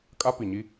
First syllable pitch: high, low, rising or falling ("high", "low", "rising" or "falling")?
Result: high